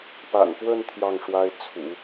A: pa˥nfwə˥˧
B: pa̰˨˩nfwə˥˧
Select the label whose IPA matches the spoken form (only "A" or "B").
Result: B